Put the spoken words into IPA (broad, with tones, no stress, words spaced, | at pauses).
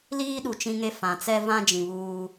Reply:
liː˦ɗu˨ t͡ʃĩ˦ŋe˦ fã˨ t͡sɛ˦ vã˦d͡ʒĩ˨ βuː˦